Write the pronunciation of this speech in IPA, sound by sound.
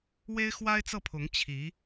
w e˥ ɪ̯ x w a˥ ɪ̯ t͡s ɤ˥˩ pʰ ʊ˧˥ ŋ t͡ɕʰ i˧˥

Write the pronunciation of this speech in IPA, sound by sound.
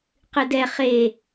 q ɨ d ɛ χ e

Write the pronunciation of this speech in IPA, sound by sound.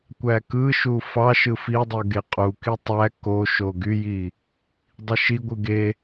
kʷ æ k ɯ ʃ u f ɑ ʃ ɯ f i dˤ ɯ ɡ e qʼ u k i tˤ æ k o ʃ o ɡ y j i | dˤ i ʃ i ɡʷ ɯ ɡ e

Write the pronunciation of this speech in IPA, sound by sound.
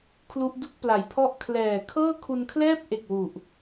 kʰ l u˦˥ ʔ d u˥˩ k̚ p l a˩˦ j pʰ ɔ˥˩ ʔ kʰ l ɛː˨˩ kʰ ɤː˥˩ kʰ u˧ n kʰ l ɛː˥˩ p̚ ʔ e˨˩ k̚ w u˨˩ ʔ

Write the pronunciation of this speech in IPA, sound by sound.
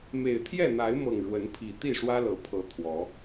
m e˨˩ ɪ̯ t̪ʰ j ɛ˥˨ n̪ a˨˦ ɪ̯ m ɤ˨˩ ŋ ɻ w ə˨˦ n pʰ i˨˩ t̪ i˥˨ ʂ w ä˦ l ɤ˨˩ pʰ ɤ˨˦ t̪ʰ w ɔ˨˦

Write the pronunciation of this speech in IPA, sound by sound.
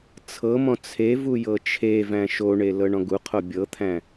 t͡sʰ ɤ m ɔ̃ t͡sʰ e v u j ɤ t͡ʃʰ e v æ̃ ʃ o ɳ e l ɤ ɳ ɔ̃ ɡ u qʰ o bʲ ɤ t̪ʰ æ̃

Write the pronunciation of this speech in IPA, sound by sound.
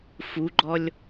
f u ɡ͡ǃ ɔ lʲ

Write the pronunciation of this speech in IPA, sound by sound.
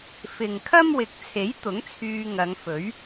f ɪ˨ ŋ kʰ ɐ˥ m w ɪ˨˥ k̚ t͡sʰ e˨˥ j t̪ ʊ˨˥ ŋ t͡sʰ yː˧ ŋ ɐ˨˧ ŋ f ɵ˨˥ ɥ

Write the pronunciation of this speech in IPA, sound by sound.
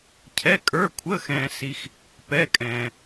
cʰ ɛ˧˥˧ kʼ ə˞˧˥˧ kʷʰ əː˧˥˧ x ɛ̃ː˧ s i˧ x | p ɛ˧˥˧ kʼ ɛ̃ː˧

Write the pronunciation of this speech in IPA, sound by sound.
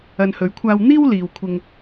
ɐ˧ n h ɵ˨˥ ɥ kʷʰ aː˧ w n̪ iː˥ w l iː˨ w kʷʰ ɪ˧ ŋ

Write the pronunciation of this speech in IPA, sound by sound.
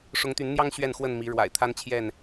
ʂ ʊ˨˦ ŋ t̪ y˨˦ n n̪ j ɑ˦ ŋ ɕ ɥ ɛ˥˨ n x w ə˥˨ n m i˨˦ ɻ w a̰˨˩ ɪ̯ t̪ʰ a˦ n t͡ɕʰ j ɛ˥˨ n

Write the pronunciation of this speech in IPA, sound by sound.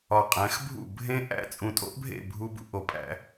ɒ˨ qʼ æ̃˨˦ x bʱ ṵ˦˨ bʱ ẽ˦ ʔ æ̰˦ t͡sʼ ũ˨ tʼ o̰˦ ʔ bʱ ḛ˦˨ bʱ u˦ b ṵ˦ ʔ o˨ pʼ æ̰˦

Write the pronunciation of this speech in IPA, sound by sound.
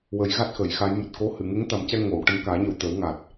w ə˨˩˦ j ɣ a˦˥ t̚ x ə˨˩˦ j x a˧˥ j m ɨ˨˩ t̚ k o˧˥ h ɨ˨˩˨ ŋ e˧˥ ŋ t̪ a˨˩˦ m c ɛ˧ ŋ o˨˩˨ w ʈ ə˧ m k aː˨˩˦ ɲ ə˨˩ w t̪ ə˨˩˦ w ŋ a˨˩ t̚

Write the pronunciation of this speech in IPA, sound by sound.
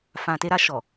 f ã˨ t e˧ ɾ a˧ ʃ ɔ˨

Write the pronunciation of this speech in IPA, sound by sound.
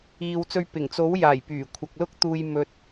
iː˨ w t͡s ɵ˧ ɥ p ɪ˨˩ ŋ t͡s o˨˥ w j aː˨˩ j p yː˨˩ kʷʰ ɐ˨ k̚ l ʊ˥ k̚ t̪ uː˧ j m ɵ˧ t̚

